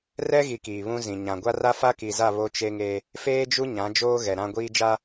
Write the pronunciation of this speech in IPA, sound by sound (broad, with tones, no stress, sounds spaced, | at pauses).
r ɛ˦ ɣ i˨ k iː˨ β ũ˦ z ĩ˨ ɲ ã˨ ɡʷ a˦ r a˦ f a˦ k i˨ z a˦˨ β o˦ t͡ʃ e˦ ŋ e˦ | f eː˦ d͡ʒ u˦ ɲ ã˨˦ d͡ʒ oː˦ ɣ ɛ˨ ɾ ã˦ ɡʷ iː˦ d͡ʒ a˦